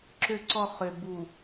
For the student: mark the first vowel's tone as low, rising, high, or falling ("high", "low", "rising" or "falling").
low